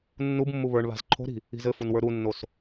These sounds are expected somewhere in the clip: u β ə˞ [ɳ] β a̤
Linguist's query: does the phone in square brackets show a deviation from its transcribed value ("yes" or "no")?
no